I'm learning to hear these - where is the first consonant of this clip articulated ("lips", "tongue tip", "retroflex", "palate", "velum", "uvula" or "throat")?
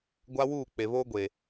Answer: velum